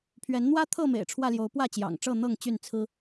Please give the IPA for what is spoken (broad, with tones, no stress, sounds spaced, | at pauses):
pʰ ɥ ɛ˨˦ n n̪ w ä˦ t̪ʰ ɤ˥˨ m ḛ˨˩ ɪ̯ ʈ͡ʂʰ w ä˥˨ l j o˨˦ ʊ̯ p w ä˥˨ t͡ɕ j ɑ̰˨˩ ŋ ʈ͡ʂ ɤ˥˨ n̪ ɤ˥˨ ŋ t͡ɕ y˥˨ n t͡sʰ ɹ̩˦